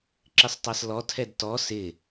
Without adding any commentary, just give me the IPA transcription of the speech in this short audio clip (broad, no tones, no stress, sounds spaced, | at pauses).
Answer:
ǁ ɪ sˤ tˤ ɑ s l ɔ tʰ ɛ d t ɔ s ɪ